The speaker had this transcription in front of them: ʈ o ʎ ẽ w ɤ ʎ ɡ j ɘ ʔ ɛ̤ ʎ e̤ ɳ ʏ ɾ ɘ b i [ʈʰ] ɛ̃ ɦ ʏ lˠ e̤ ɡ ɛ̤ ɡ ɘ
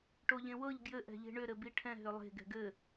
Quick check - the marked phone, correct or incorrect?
correct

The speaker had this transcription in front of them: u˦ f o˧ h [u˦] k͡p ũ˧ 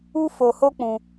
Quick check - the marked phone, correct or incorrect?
incorrect: o˦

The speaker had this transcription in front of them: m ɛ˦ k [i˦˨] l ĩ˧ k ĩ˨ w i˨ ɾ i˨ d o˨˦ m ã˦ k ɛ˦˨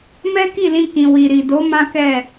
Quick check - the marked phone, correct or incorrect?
correct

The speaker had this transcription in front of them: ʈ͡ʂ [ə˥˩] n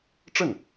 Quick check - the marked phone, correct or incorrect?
correct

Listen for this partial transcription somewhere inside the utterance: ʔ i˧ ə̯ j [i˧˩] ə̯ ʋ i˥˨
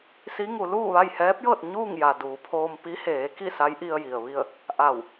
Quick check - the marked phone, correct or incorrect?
incorrect: i˩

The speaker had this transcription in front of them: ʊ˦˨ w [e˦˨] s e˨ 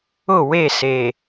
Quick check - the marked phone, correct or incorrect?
correct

